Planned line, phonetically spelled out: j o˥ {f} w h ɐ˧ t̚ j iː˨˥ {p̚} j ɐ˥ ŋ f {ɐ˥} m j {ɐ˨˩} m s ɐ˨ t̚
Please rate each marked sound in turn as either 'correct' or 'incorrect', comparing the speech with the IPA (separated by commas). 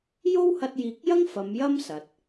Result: incorrect, incorrect, incorrect, incorrect